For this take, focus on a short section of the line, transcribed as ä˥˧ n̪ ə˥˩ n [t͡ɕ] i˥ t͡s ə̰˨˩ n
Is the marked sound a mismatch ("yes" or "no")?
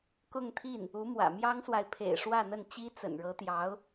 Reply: no